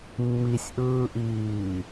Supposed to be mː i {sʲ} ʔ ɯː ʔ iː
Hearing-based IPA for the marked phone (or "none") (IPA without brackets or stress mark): sʲ